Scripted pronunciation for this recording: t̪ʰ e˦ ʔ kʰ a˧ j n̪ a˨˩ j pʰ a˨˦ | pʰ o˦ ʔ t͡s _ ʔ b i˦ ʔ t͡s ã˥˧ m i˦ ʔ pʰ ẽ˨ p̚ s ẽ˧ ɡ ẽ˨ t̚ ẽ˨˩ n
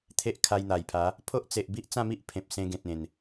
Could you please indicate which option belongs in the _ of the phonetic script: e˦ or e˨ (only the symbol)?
e˨